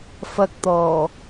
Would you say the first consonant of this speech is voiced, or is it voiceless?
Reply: voiceless